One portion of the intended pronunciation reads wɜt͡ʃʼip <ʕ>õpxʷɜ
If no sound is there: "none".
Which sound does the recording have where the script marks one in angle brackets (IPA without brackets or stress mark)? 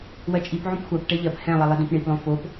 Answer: ʕ